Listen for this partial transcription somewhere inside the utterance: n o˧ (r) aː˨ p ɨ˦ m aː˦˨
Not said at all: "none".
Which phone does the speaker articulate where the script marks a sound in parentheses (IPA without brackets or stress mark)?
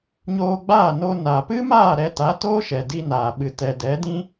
n